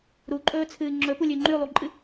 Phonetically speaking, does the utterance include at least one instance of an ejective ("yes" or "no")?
yes